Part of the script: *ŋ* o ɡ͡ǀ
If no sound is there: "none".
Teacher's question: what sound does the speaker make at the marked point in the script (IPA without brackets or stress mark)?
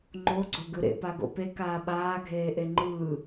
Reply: ŋ͡ǃ